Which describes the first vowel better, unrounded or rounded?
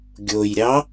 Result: rounded